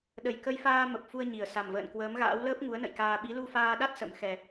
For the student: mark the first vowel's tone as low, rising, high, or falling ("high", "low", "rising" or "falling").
low